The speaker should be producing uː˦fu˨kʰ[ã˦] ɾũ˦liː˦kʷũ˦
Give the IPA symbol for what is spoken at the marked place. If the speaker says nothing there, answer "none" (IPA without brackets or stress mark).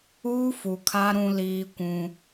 a˦